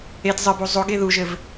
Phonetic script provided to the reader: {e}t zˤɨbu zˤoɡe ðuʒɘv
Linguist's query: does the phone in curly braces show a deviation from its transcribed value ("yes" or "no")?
no